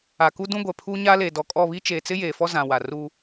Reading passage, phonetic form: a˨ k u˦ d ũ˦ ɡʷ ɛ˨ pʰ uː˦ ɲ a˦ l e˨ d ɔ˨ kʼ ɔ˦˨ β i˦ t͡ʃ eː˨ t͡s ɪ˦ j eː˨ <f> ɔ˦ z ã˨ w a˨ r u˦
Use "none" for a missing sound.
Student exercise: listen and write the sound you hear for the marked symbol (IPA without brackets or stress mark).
f